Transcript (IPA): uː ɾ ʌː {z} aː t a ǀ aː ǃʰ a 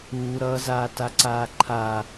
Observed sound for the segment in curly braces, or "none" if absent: z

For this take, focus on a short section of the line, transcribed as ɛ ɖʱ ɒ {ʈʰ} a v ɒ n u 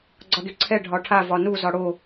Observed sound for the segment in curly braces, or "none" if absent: ʈʰ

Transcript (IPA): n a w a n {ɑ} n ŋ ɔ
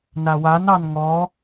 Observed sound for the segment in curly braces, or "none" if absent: ɑ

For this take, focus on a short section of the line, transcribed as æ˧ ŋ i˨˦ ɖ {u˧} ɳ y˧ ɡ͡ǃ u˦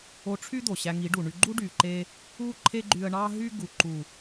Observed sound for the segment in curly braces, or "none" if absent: u˨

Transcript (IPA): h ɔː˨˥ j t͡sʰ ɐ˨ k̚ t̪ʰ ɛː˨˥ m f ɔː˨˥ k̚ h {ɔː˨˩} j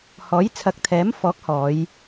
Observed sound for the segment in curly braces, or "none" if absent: ɔː˨˧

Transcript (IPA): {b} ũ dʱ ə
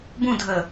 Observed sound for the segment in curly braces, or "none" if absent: b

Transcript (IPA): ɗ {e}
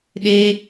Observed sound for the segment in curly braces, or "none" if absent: e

